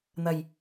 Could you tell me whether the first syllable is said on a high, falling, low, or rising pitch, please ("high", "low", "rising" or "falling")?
low